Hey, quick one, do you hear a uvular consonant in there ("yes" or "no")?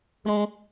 no